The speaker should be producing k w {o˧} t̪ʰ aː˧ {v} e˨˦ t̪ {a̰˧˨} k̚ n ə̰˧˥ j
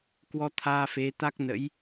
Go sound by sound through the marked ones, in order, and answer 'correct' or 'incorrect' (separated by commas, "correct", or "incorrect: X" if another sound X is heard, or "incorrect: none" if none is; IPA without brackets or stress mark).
incorrect: ɔ˧, incorrect: f, incorrect: a˦˥